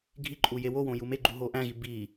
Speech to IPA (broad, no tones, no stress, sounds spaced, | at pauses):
ɡʱ i ǃʼ u j e w o w õ j u m e ɡ͡ǃ u ɦ o ʔ æ̃ ɣ i b i